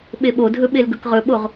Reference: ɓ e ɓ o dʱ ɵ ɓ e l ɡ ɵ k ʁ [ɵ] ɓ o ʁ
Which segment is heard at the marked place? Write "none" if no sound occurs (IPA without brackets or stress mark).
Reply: ɵ